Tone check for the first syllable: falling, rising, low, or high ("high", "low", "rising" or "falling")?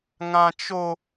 high